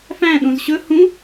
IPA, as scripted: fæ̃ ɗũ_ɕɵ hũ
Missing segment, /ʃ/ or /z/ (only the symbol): z